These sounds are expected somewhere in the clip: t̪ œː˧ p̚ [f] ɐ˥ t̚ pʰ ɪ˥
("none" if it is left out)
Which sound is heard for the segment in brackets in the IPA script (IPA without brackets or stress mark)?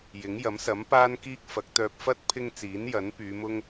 f